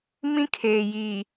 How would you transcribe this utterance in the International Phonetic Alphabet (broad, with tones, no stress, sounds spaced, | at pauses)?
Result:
m ĩ˦ kʰ eː˨ j iː˨